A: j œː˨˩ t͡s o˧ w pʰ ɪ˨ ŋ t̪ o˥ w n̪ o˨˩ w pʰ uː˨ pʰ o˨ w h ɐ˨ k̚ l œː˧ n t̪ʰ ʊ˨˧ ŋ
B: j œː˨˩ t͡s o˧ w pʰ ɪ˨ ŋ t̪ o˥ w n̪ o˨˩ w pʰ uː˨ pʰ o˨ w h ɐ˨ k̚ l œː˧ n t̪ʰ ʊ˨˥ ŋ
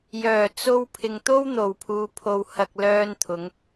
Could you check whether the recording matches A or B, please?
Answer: A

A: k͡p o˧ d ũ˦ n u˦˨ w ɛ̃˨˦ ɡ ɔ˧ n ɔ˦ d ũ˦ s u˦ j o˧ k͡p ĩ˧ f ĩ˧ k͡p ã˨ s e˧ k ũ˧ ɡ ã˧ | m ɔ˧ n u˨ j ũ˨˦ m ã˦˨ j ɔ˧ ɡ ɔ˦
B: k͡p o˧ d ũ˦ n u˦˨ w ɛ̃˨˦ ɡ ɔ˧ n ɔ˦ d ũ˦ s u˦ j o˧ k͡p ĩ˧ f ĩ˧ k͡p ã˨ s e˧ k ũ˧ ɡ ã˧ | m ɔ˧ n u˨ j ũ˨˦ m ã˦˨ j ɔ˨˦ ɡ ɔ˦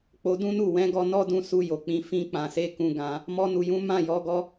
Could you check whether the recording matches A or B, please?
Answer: B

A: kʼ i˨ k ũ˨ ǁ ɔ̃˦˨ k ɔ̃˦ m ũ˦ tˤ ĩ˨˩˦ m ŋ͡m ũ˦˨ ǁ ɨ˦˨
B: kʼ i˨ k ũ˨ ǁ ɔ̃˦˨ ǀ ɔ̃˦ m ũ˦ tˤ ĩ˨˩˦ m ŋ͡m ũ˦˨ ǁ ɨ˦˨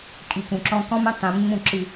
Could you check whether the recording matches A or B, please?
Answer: A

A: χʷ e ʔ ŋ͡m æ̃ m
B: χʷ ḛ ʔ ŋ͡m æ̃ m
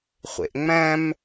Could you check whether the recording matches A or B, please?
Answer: B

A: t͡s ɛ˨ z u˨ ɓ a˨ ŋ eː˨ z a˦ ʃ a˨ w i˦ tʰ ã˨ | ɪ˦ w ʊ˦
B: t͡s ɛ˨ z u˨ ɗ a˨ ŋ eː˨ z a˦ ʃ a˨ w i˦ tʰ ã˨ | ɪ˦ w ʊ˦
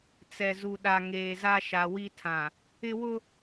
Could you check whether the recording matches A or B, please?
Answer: B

